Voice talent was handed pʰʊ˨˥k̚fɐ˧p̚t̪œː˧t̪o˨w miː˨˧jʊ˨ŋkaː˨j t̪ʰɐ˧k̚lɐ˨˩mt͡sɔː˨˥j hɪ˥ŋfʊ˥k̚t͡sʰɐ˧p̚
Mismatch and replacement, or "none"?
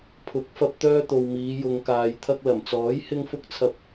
none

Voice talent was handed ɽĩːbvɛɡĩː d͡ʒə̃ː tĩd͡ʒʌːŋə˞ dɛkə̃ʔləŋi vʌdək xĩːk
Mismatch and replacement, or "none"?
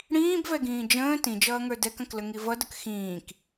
ʔ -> k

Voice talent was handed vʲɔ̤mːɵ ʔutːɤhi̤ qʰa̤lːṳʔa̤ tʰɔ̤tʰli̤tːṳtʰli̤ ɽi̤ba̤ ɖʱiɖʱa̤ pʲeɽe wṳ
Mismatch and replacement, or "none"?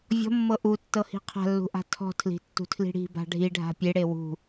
ɵ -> ɤ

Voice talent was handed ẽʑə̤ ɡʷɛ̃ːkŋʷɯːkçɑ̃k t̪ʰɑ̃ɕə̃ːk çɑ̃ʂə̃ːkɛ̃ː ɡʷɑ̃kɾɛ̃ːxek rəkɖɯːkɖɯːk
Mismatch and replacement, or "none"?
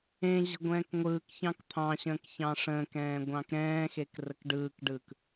none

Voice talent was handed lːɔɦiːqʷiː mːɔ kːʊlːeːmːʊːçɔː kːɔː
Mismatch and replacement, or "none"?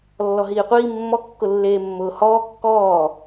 ç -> h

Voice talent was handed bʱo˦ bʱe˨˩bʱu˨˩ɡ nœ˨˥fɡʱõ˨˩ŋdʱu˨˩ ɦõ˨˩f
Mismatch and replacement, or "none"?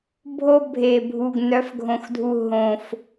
ŋ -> x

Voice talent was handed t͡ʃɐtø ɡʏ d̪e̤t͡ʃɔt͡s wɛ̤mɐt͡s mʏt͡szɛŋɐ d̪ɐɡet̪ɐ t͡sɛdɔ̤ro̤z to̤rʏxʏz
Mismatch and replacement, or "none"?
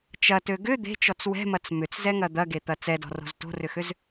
none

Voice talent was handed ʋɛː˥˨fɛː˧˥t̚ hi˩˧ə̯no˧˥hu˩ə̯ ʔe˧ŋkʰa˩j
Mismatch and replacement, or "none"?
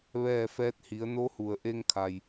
none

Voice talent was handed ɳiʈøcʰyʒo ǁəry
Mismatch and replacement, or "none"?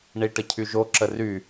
ø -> ə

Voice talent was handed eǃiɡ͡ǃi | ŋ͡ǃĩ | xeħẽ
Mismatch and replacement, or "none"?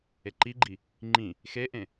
ħ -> ʔ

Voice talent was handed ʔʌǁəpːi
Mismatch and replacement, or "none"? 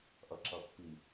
ə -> ʌ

